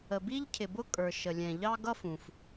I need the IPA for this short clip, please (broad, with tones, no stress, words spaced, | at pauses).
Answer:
ə˩bi˥ʎcʰɪ˩bʊ˥ kʼə˞˩ʃə˩lʲɛ̃˩ ʎɑ˥ɡʌ˥fũ˩f